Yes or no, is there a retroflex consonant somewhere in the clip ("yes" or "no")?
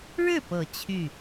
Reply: yes